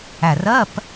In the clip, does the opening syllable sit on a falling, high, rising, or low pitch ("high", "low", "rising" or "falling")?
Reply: low